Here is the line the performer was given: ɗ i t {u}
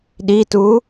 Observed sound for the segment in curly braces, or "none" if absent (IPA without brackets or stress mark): u